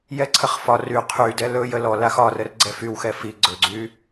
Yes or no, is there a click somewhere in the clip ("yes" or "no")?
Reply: yes